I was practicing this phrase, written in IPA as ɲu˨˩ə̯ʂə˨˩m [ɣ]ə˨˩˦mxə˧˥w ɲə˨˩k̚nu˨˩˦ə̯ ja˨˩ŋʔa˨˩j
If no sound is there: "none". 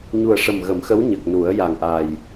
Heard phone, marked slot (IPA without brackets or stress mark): ɣ